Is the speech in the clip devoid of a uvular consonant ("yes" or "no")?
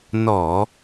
yes